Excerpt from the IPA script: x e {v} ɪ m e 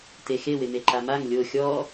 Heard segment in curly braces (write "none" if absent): w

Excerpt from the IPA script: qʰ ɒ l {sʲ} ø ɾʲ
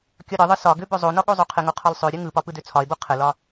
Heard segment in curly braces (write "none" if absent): sˤ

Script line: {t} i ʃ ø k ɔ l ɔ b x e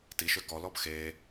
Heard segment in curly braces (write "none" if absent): t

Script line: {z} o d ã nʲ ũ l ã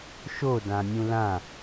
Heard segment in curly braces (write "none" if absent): ʃ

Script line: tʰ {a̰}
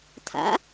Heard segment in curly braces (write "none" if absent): a̰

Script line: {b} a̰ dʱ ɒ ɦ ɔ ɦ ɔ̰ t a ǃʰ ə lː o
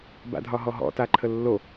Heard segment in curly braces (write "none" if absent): b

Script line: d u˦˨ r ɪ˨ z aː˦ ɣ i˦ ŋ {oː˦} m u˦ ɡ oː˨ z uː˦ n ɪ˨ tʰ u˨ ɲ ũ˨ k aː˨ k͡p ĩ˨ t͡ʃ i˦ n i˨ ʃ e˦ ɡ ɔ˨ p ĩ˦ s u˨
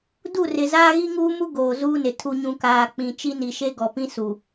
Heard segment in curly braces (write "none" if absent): uː˦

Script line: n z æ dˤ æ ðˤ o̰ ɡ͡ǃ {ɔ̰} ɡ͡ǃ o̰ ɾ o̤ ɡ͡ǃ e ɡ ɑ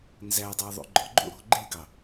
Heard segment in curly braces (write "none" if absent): ɔ̰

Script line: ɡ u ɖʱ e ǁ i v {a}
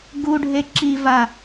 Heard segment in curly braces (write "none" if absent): a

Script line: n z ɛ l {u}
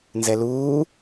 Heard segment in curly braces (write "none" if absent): uː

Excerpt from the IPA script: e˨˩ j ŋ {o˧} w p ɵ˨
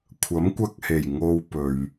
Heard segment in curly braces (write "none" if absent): o˧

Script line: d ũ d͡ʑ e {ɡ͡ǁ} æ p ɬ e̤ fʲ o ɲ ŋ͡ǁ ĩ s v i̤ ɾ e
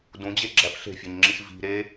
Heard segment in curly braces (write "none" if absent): ɡ͡ǁ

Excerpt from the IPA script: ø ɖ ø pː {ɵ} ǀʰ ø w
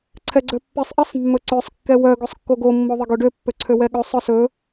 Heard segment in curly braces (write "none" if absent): ø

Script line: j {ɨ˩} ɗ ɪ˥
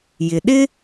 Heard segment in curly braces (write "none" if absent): ɪ˩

